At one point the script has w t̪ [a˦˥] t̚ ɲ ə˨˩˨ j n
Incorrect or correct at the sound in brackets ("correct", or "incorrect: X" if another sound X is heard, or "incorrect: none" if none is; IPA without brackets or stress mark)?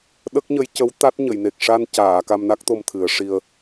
correct